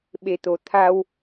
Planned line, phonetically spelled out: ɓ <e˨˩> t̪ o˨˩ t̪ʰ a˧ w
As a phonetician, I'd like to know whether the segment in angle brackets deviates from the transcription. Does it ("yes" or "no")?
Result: no